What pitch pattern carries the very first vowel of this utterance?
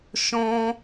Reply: high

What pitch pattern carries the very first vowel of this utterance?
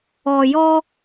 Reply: low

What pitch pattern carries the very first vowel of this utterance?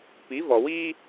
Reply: rising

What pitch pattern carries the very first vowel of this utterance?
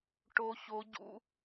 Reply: high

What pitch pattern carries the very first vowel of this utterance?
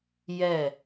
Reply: falling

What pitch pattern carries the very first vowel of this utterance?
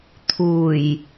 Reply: low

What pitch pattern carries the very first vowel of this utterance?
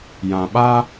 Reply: low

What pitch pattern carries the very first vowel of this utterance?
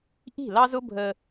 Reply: falling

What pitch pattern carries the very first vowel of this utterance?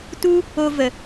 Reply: high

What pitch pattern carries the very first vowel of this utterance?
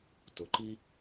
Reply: rising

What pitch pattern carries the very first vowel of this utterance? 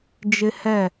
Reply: high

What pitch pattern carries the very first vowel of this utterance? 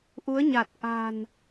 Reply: rising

